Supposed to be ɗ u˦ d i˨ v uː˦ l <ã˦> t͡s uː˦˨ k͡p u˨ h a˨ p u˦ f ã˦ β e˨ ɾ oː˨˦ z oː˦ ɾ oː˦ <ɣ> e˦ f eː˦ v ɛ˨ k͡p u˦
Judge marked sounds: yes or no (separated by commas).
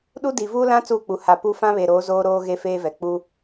yes, yes